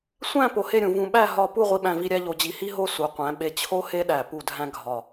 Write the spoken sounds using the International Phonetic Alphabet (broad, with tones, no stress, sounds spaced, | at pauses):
sʷ æ̃˥˧ p o˧ h e˥˧ ɾʲ ũ˩˧ v ũ˧ ɓ æ˥˧ ɦ ɒ˥˧ p u˥˧ ʁʷ i˧ ɓ æ̃˧ v i˧ ɾʲ æ˥ ʎ o˧ d͡ʑ i˧ h i˥ ɦ o˥˧ s u˩˧ qʷ æ̃˩˧ ɓ e˧ t͡ɕʰ o˥ h e˥ ɗ æ˧˩ p u˧˩ dʱ æ̃˧ ɡʱ ɒ˧˩